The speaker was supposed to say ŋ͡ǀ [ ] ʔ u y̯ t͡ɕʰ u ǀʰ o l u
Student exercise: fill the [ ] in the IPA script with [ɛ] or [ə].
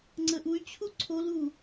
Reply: ə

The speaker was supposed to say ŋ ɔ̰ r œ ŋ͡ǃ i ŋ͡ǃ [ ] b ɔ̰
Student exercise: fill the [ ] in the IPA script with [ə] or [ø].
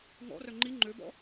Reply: ø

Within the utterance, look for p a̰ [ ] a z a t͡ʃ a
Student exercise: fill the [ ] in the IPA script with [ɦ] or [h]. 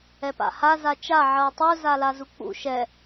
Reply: h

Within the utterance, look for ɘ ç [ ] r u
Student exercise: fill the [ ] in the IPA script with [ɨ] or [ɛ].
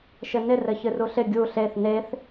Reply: ɨ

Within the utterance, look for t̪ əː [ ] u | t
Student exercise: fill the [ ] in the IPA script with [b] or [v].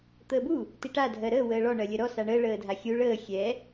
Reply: b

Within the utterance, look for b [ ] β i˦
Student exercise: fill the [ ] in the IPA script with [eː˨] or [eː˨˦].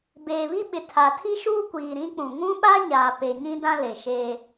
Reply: eː˨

